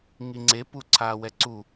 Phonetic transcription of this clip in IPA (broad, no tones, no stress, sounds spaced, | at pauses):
ŋ i ŋ͡ǀ e p u ǀʰ aː w ɛ ǀ u